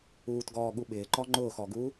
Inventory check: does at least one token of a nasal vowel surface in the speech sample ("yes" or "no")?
no